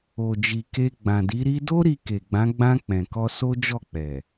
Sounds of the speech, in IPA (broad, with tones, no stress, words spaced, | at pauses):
o˨d͡ʒi˨ke˧ ɡ͡bã˨di˨˦ ɾi˧do˦ ɾi˧ke˨ɡ͡bã˨˦ ɡ͡bã˧ k͡pɛ̃˨kɔ˧ so˦d͡ʒɔ˦˨k͡pɛ˨